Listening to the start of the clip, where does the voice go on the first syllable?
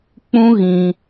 high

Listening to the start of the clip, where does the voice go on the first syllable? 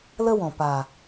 high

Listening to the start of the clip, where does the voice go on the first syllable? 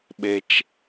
low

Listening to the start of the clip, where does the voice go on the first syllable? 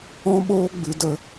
high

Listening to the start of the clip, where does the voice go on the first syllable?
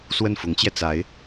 falling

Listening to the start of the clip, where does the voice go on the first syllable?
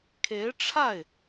rising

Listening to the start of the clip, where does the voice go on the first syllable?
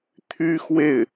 high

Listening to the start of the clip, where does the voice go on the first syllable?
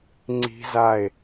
high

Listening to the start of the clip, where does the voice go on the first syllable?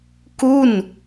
falling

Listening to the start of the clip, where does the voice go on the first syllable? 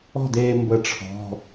falling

